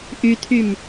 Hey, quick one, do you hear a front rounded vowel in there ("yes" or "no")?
yes